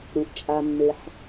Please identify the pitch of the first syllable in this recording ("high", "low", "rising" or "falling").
low